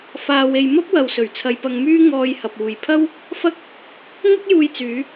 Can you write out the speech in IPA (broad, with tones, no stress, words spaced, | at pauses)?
faː˧we˧j mɐ˥p̚wɐ˨wsɵ˨˩ɥ t͡sʰɐ˧jpɐ˧ŋmyː˥ ŋɔː˧jhɐ˨p̚ uː˨jpʰɐ˥w | fɐ˥k̚ | ŋɐ˥k̚juː˧jt͡syː˨˧